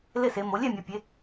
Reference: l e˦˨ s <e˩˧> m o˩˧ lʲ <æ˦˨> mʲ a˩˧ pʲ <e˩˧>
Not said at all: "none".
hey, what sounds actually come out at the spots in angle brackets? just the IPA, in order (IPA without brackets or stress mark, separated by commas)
e˩˧, ɛ˦˨, e˩˧